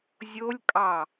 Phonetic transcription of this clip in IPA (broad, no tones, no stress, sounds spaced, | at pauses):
zʲ o lʲ kʼ ɑ